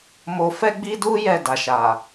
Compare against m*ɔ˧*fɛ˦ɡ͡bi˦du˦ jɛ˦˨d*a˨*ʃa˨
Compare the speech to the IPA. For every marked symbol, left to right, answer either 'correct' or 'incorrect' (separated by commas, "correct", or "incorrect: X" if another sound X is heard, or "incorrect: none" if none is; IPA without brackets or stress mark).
incorrect: o˧, correct